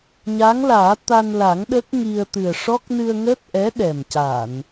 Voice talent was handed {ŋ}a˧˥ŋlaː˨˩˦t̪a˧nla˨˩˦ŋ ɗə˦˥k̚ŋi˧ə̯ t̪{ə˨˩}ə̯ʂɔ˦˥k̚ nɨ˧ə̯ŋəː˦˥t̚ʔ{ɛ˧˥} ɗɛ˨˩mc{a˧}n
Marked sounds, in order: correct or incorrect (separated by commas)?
incorrect, incorrect, correct, incorrect